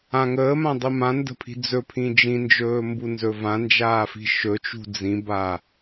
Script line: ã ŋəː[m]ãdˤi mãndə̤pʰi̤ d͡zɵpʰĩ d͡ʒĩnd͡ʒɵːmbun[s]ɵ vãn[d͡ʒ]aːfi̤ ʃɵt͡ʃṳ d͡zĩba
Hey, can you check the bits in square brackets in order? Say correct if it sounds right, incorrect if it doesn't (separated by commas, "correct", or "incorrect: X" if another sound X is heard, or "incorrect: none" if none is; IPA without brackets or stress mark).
correct, incorrect: z, correct